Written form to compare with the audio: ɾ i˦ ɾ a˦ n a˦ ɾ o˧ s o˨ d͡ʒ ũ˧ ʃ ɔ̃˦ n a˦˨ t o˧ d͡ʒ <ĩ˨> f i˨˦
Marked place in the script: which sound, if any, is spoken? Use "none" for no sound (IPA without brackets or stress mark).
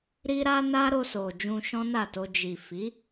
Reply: i˨